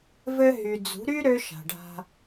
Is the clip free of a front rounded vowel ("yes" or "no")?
no